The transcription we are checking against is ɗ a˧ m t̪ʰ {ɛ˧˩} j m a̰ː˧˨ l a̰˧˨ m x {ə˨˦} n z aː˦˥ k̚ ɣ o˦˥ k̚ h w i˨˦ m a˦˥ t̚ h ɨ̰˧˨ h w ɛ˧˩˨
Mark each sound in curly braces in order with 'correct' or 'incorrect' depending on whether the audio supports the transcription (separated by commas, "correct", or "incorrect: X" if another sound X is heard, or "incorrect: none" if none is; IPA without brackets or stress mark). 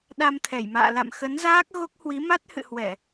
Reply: correct, correct